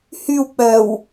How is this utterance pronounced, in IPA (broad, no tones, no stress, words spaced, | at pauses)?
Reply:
hyw k͡pœw